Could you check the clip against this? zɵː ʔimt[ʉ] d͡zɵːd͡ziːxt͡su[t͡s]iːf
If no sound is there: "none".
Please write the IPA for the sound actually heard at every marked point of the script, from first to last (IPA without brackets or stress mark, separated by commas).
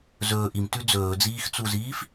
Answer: ʉ, z